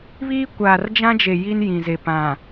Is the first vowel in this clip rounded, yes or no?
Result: no